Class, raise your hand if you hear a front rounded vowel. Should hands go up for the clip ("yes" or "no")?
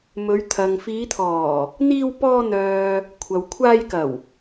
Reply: yes